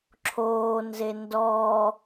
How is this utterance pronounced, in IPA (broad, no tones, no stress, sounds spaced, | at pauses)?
ǁʰ oː n z e n d ɔ